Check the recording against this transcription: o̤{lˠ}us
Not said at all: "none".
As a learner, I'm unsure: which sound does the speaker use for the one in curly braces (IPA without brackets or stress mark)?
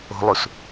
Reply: lˠ